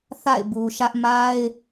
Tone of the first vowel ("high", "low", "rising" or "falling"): falling